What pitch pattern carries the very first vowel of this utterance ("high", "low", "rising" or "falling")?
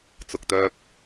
low